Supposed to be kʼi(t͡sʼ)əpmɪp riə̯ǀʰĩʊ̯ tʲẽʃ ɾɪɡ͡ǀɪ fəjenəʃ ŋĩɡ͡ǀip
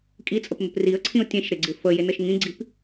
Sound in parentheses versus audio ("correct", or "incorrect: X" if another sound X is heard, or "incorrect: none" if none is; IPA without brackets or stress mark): correct